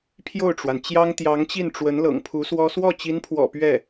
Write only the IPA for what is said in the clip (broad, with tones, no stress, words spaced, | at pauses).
pʰjo˥˩ʊ̯ʈ͡ʂwa˩nt͡ɕjɑ˥ŋ t̪jɑ˧˥ŋt͡ɕi˥˩nʈ͡ʂwə˧˥n lɤ̰˨˩ŋpʰu˧˥swɔ˥ swɔ˥˩t͡ɕi˧˥npʰwɔ̰˨˩ pɥɛ˥˩